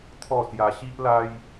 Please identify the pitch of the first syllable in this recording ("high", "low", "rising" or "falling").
falling